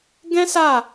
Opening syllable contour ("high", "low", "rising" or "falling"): high